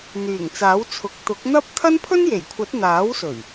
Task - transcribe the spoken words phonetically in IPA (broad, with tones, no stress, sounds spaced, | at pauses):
n̪ yː˨˩ ŋ t͡s aː˨˥ w t͡sʰ ʊ˨ k̚ t̪ ʊ˨˥ k̚ n̪ ɐ˥ p̚ t̪ʰ ɐ˥ n pʰ ɵ˥ n j e˨˩ j kʷʰ ɐ˨˥ t̚ n̪ aː˨˥ w s ɵ˨˩ ɥ